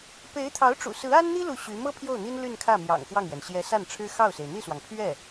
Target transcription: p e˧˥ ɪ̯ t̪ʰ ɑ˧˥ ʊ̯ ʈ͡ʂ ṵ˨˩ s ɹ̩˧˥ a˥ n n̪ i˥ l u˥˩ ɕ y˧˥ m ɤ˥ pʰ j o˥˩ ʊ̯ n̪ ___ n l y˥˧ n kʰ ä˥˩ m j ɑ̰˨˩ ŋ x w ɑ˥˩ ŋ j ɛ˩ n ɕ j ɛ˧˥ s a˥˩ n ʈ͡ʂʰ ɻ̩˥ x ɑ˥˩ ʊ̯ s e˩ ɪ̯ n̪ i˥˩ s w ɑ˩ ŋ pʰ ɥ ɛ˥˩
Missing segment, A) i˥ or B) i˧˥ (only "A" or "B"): A